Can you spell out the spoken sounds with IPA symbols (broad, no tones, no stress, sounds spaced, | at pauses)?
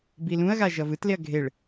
b i l ũ ɐ̯ ɣ a ʒ ʌ v ɯ t l e ɐ̯ ɡʱ e ɭ